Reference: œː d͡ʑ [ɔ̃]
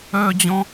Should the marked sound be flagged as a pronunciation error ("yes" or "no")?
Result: no